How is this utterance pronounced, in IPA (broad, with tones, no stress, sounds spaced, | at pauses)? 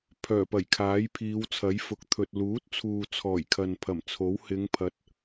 pʰ œː˨˩ p ɐ˨˩ j kʰ aː˨˥ j pʰ iː˨˧ w t͡sʰ ɐ˨˥ j f ʊ˨˥ k̚ t̪ʰ ɵ˨ t̚ l uː˨˥ t̚ t͡sʰ uː˨ t͡sʰ ɔː˨˩ j kʰ ɐ˨ n pʰ ɐ˨˩ m t͡sʰ o˨˥ w h ɪ˨˧ ŋ pʰ ɐ˨˥ t̚